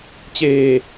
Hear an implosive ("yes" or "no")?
no